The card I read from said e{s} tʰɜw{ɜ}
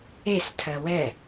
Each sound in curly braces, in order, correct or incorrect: correct, incorrect: ɛ

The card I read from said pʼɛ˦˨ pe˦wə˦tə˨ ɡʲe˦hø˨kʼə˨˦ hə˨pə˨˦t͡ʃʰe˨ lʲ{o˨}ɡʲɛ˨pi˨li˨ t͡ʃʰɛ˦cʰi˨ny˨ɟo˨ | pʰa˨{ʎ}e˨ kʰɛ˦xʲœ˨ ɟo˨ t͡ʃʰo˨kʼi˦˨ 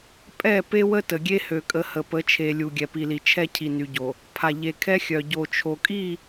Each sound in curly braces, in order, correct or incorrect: incorrect: u˨, correct

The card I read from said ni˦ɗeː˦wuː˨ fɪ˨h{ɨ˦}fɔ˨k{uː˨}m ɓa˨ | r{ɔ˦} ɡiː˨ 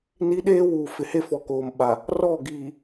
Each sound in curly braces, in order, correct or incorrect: incorrect: e˦, incorrect: oː˨, incorrect: ɔ˦˨

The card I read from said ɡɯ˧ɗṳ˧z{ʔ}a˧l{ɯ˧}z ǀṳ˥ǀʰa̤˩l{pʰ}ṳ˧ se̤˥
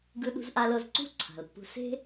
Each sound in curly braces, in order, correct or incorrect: correct, incorrect: ɤ˧, incorrect: pː

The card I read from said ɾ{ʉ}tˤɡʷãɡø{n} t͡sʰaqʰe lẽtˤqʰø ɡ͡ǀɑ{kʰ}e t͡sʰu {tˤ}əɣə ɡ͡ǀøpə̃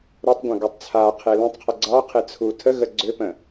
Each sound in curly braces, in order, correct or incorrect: incorrect: ø, incorrect: tˤ, incorrect: qʰ, incorrect: tʰ

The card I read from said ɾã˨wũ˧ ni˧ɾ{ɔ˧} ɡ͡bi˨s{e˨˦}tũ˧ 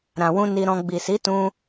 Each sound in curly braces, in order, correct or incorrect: incorrect: ɔ̃˧, incorrect: i˨˦

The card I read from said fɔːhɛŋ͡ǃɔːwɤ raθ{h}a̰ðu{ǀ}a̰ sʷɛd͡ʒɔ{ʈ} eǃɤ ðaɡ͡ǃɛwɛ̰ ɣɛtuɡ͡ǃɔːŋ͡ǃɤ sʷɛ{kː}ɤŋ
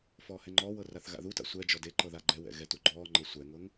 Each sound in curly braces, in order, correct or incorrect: incorrect: ɣ, incorrect: t, incorrect: d, incorrect: ŋ

